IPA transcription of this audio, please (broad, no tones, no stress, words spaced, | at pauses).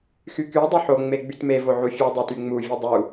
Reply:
xyky dˤɵħo ŋ͡meɡ͡bytme voʕufʲʉ dˤotyŋ͡mu vʲudˤu